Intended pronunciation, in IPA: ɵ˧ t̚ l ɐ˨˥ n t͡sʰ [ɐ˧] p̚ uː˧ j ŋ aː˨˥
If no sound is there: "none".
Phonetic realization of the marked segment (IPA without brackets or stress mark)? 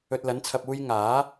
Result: ɐ˧